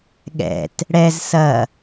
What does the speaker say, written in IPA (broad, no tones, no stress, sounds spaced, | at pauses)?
ɠ ɛ̰ t | ɽ ɛ z s ɐ